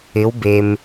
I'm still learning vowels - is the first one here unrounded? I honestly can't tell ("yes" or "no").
yes